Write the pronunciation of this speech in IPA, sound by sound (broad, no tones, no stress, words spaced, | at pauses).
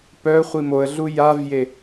pœ χʷimoə̯ɮu javje